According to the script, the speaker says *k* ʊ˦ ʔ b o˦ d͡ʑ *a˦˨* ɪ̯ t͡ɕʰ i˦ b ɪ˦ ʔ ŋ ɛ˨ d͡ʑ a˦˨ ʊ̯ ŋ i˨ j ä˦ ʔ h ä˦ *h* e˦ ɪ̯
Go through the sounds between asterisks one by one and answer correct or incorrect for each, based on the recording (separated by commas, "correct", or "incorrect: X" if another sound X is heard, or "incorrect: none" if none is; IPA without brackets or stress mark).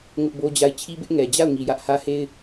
incorrect: ŋ, correct, correct